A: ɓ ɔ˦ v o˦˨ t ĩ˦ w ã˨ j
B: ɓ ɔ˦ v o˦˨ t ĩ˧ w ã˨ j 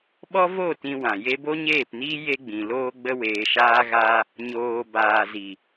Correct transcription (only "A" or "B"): B